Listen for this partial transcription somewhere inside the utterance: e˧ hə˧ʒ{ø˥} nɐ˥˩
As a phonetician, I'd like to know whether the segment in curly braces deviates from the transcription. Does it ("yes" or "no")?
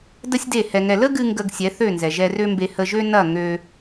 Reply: no